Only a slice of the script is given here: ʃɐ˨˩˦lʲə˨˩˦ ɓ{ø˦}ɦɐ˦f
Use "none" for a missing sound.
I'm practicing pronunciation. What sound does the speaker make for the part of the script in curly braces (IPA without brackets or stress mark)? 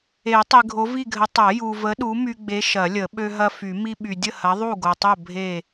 ø˦